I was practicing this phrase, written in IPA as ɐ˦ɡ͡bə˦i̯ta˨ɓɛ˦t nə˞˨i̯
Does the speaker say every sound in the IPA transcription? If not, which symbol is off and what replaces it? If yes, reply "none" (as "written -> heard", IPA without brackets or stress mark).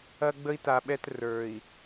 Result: n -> r